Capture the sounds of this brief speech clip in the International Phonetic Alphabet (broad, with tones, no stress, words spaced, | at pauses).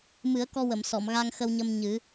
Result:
mɨ˨˩˦ə̯kɔ˧wə˨˩˨m sɔ˨˩˨mɣa˧ŋxə˧wɲə˧m ɲɨ˨˩˦